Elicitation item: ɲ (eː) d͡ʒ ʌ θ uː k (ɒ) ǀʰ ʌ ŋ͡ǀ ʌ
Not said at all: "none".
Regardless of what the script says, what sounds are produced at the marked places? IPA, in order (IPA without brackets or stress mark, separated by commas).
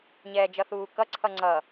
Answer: ɛː, ʌ